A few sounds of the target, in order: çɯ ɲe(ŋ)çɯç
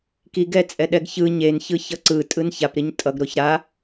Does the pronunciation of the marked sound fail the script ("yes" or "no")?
yes